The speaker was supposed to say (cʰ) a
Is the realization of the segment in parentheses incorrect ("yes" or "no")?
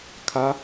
yes